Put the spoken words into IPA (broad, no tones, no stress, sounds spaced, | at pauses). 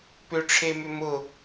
p ʏ ʈ͡ʂʰ e m ʏ m ʊ